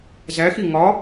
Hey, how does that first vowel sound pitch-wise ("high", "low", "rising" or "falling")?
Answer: rising